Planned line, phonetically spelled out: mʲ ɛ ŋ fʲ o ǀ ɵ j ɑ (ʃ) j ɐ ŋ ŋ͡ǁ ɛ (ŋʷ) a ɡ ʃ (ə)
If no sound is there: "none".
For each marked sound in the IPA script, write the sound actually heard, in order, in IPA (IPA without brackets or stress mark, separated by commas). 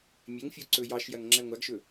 ʃ, ŋʷ, ɵ